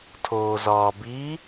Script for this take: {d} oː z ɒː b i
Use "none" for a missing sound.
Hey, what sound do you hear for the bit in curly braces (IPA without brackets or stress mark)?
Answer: tʰ